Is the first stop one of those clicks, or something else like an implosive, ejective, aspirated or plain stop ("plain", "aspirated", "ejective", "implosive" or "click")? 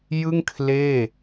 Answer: aspirated